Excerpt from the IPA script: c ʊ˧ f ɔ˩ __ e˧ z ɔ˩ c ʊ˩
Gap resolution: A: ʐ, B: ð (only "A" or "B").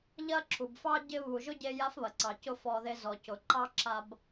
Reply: B